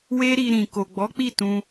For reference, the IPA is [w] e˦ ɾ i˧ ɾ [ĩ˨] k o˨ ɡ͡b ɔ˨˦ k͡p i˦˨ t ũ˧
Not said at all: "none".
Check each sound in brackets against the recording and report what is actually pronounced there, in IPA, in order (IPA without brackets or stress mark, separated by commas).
w, ĩ˨